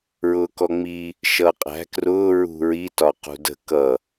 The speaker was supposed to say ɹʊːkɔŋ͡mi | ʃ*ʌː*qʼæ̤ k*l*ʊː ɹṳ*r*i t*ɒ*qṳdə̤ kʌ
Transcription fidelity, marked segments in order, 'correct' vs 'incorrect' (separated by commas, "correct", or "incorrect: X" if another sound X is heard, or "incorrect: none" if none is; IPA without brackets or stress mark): correct, incorrect: r, incorrect: ɹ, correct